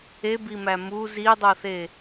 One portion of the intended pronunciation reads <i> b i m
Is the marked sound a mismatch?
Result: yes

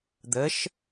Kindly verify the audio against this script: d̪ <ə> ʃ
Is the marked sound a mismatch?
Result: no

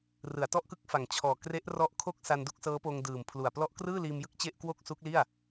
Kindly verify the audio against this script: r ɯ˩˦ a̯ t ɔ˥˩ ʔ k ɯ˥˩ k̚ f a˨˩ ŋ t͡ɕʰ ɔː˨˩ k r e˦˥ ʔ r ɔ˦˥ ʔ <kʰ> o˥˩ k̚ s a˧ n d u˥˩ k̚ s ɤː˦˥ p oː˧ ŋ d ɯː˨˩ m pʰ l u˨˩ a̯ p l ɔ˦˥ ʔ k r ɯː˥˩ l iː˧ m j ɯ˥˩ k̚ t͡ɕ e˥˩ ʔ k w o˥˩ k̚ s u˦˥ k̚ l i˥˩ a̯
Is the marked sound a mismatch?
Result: no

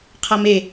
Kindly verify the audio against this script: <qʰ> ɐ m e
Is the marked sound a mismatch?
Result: no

